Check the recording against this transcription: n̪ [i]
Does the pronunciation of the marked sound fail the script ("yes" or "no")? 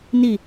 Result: no